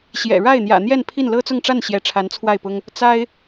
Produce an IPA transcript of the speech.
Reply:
ɕ j ɛ̰˨˩ ɻ a˥˩ ɪ̯ n̪ j ä̰˨˩ n̪ j ɛ˥˧ n pʰ i˥˩ n l ɤ˥ t͡s ʊ˥˧ ŋ ʈ͡ʂ a˥˩ n ɕ j ɛ˧˥ ʈ͡ʂʰ a˧˥ n t͡sʰ w a˥˩ ɪ̯ p ʊ˥ ŋ | t͡s a˥ ɪ̯

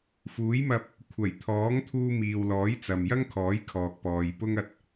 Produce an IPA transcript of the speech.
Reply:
f uː˨˥ j m ɐ˧ p̚ | kʷʰ ɐ˨˩ j t̪ʰ ɔː˨˥ ŋ t̪ʰ uː˧ m iː˨ w l ɔː˨˥ j t͡s ɐ˨ m j ɐ˥ ŋ kʰ ɔː˨˥ j kʰ ɔː˨ k̚ p ɔː˨ j p ʊ˥ ŋ ɐ˧ t̚

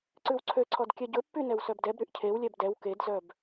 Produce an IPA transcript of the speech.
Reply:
ǀ ʉ w ǀʰ ø ǀʰ ɔ d kʲ ɛ ɟ ɵ pː y n ɛ w s œ b d ɛ b ɾ y ʔ cʰ e w lʲ ɛ b d ɛ w k e d z œ b

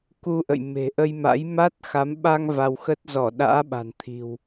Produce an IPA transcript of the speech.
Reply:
k u˧ ʔ ə̰˧˨ j m e̤˨˩ ʔ ə˧ j m a̰˧˥ j m a˦˥ t̚ x a˨˦ m ɓ a˧ ŋ v a˧ w x ə˦˥ t̚ z ɔ˧˩ ɗ a̰ː˧˥ ɓ a̤˨˩ n t̪ʰ i̤˨˩ w

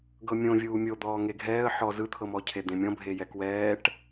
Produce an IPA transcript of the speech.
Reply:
ɡ ɤ mʲ õ vʲ uː mʲ o d̪ ɔː ŋ e ɡʱ ɛː ə̯ ħ ɔ z ɯ t̪ʰ ɤ m ɔ cʰ e d̪ ẽ mʲ ɔ̃ bʱ e j ɛ k w ɛː ʈ

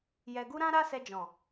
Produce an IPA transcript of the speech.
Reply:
j ɛ˨ ɡ u˧ ɾ ã˦ ɾ a˦ s ɛ˧ d͡ʒ ɔ̃˨

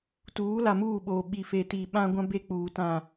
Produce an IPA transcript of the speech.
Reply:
t uː˨˦ l a˨ m uː˦˨ ɓ oː˨ ɓ i˨ f e˨ t i˨ ɓ ã˦ ɡʷ ã˦ b e˦ k͡p uː˨ t ã˦˨

